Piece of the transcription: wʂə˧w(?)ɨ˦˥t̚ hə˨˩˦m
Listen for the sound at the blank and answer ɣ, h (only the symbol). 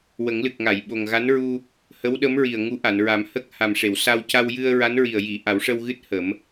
ɣ